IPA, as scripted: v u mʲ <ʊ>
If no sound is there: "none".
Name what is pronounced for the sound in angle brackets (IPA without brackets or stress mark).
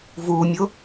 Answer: ʊ